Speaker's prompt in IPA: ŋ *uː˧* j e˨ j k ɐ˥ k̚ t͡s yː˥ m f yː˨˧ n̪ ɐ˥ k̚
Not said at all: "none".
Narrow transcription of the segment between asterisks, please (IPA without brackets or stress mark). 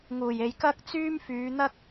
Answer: uː˨˩